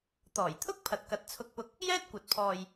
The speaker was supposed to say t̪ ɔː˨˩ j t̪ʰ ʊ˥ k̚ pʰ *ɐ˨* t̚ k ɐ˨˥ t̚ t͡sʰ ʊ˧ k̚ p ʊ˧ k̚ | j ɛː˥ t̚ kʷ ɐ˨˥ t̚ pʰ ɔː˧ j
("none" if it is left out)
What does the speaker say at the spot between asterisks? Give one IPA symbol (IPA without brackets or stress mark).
ɐ˨